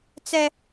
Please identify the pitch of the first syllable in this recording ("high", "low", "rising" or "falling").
high